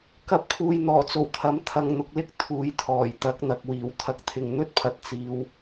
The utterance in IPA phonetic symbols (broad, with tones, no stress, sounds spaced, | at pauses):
k ɐ˧ p̚ kʰ uː˨ j n̪ ɔː˨˩ t͡s o˨˩ w t̪ʰ ɐ˨˥ m t̪ʰ ɐ˧ ŋ n̪ ʊ˧ k̚ l ɪ˥ k̚ t̪ʰ uː˨˧ j t̪ʰ ɔː˨˩ j t̪ ɐ˨˥ k̚ n̪ ɐ˨ k̚ w iː˨˩ w t̪ʰ ɐ˧ k̚ t̪ʰ ɪ˧ ŋ n̪ ɵ˥ t̚ pʰ ɐ˨ t̚ t͡s iː˧ w